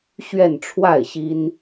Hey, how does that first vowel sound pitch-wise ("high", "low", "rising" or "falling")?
falling